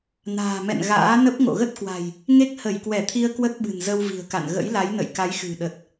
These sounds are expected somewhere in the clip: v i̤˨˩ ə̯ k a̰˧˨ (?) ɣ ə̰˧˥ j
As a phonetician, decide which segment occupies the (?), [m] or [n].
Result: n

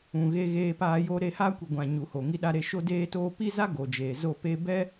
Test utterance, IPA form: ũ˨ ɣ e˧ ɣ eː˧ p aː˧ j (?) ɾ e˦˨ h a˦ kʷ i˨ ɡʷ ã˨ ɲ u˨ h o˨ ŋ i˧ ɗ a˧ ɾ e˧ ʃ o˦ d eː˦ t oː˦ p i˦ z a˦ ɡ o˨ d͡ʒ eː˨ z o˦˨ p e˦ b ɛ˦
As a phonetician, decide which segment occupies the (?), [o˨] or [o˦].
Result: o˦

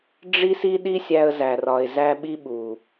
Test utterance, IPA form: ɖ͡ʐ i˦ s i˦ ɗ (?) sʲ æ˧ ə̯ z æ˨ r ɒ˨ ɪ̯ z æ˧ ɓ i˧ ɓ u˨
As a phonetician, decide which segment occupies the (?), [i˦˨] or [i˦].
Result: i˦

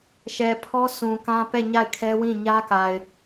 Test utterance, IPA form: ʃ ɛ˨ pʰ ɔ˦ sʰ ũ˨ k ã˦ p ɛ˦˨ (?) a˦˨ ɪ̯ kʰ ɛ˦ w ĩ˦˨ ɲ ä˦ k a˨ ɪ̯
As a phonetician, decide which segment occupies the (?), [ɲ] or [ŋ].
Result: ɲ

